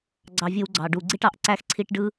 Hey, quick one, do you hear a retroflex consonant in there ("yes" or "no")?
yes